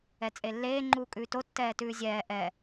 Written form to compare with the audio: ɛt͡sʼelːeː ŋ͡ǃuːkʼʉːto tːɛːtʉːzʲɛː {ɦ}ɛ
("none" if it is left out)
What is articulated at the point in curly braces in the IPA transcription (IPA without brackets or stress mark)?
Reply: ʔ